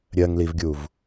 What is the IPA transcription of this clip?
ɾʲ ɜ ŋ l i v ɡʲ u v

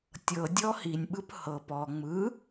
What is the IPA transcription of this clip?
tʲ ɤ dʲ ɔ h i nʲ ɓ ɯ p h ɤ p ɔ ŋ͡m ɯ

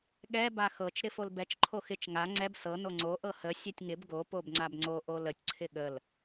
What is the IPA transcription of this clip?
ɠ ɛ b a x ɤ t͡ʃ ɾ ɪ f o l b ɛ t͡ʃ ǃʰ o x ɪ t͡ʃ ŋ a ŋ͡ǀ ɛ b s ɤ n o ŋ͡ǀ o ʔ ɤ h ə sʲ ɛ tʲ ŋ ɪ b ɡ o p o b ŋ͡ǀ a b ŋ͡ǀ o ʔ o l ə tʲ ǀʰ ɪ ɠ ə l

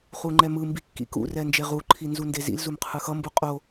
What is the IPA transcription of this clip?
χ u ŋ͡ǃ ɛ m ɯ m b i kː ḭ k ṵ r ɛ n d͡ʒ e ʁ u ǃʰ i n z u n d e z ḭ l z u m qʰ ɯ x ʌ m b u qʼ o

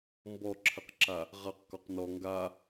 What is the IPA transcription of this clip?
m b ɔ ǁʰ ɘ q ǁ a | ʁ a q k ɔ q n ɔ ŋ ɡ a

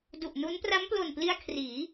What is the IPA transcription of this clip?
d u˨˩ ʔ n u˦˥ n p r a˦˥ m p l o˨˩ n p l i˧ a̯ kʰ r iː˩˦

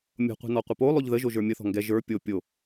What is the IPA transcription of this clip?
mʲ o̤ qʷ i̤ n ɔ qʷ ə p o lˠ o ʎ ð ə ʒ o ʒ ə˞ mʲ ə θ ɔ̤ ŋ ɡ ɛ ʒ ə˞ pʲ o pʲ o

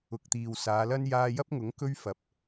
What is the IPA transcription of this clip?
ʊ˨ k̚ t̪ iː˨ w s aː˨˧ l ɐ˥ n j aː˧ j ɐ˥ p̚ ŋ ʊ˨˥ ŋ k ɵ˥ ɥ f ɐ˨˥ p̚

